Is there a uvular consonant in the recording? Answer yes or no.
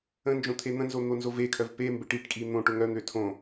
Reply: no